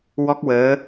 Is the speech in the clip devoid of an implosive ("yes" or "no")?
yes